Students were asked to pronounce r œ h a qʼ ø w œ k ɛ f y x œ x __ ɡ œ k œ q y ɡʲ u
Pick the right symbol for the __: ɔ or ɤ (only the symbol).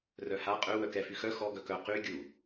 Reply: ɔ